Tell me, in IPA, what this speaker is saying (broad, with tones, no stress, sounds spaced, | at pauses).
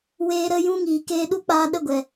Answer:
w eː˧ ɾ ə˧ j ũ˦ ŋ iː˨ k eː˧ ɗ u˦ k͡p aː˧ ɗ ə˦˨ ɡʷ ɛ˨